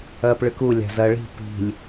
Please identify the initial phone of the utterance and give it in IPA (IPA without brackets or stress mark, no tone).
ɐː